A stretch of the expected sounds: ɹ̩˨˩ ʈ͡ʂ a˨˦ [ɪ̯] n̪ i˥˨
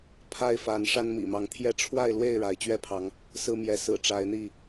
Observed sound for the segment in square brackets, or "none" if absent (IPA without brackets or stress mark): ɪ̯